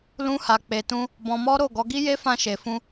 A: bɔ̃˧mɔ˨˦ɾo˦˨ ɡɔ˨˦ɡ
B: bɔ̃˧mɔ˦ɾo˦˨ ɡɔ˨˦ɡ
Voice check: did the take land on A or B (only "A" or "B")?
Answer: B